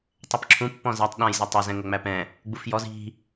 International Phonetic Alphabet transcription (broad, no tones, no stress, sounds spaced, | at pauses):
tˤ ɛ p ǁʰ ũ pː ɔ̃ z æ tˤ ɗ ã j z ʌ tˤ ə z ɛ̃ ŋ ɵ ŋ͡m æ p ɛ̃ | ɡ͡b u f j ɔ z i̤